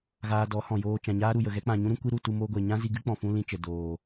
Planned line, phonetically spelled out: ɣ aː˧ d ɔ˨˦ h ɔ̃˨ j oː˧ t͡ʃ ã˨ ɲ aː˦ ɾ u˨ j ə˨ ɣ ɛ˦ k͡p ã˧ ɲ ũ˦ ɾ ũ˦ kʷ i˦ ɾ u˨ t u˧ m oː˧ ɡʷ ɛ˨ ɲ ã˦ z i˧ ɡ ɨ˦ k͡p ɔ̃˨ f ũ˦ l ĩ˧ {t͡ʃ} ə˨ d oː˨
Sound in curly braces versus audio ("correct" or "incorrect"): correct